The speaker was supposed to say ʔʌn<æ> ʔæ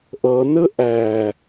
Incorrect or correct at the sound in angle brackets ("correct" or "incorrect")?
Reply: incorrect